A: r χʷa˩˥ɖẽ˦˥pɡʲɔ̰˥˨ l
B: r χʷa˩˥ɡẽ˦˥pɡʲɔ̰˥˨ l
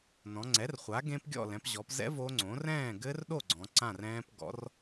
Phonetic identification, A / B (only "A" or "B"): B